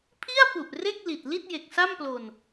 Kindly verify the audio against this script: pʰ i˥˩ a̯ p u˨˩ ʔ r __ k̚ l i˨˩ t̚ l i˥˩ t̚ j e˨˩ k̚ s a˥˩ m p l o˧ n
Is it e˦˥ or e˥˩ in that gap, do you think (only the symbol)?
e˥˩